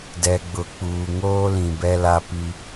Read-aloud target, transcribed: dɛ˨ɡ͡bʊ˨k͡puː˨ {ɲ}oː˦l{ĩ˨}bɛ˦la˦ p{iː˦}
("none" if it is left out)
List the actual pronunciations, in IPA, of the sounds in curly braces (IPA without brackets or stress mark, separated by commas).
ŋ, ĩ˨, i˦